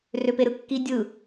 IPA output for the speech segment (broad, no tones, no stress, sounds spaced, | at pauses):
r ø p e ɾ ɯ kː i dʲ ɯ